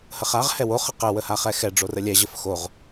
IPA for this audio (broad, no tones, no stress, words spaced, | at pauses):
həχaʁ hɛwo χəqə wəhaχɛxɛ ɖ͡ʐorəlʲɛ ʑəfxoʁ